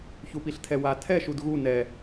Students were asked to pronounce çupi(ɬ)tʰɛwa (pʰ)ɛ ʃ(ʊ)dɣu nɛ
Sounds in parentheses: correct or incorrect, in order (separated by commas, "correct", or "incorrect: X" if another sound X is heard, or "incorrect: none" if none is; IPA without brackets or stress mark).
correct, incorrect: tʰ, incorrect: u